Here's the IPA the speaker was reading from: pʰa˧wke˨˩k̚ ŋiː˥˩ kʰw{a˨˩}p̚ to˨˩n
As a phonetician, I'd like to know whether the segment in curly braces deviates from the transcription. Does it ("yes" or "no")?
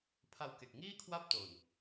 yes